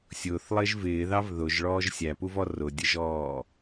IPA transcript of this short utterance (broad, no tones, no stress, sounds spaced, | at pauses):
sʲ ʊː θ lˠ ɪː ʒ v ɪː ð ɑ v ð ʊ ʒ ɭ ɔː ʒ sʲ æ p u v ɔ r ʊ dʲ ə ʒ ɔː